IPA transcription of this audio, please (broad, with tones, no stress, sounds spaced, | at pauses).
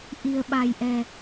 ʔ i̤˨˩ ə̯ ɓ a̤˨˩ j ʔ ɛ̤˨˩